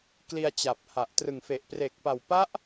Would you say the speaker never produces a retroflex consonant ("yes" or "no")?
yes